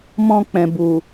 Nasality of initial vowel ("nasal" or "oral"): nasal